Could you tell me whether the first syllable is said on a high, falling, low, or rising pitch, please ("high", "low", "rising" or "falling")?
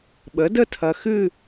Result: rising